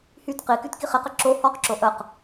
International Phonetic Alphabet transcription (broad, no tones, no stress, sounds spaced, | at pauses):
h y t q i k y t k i χ i q ə ǁ o h ɔ q ǁ o ʔ ə q